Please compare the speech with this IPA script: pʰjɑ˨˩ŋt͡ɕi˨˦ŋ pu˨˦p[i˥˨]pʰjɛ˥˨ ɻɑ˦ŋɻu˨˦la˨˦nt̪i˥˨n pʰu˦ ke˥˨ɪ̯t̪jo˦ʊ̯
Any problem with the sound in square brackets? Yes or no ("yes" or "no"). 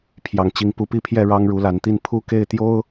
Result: no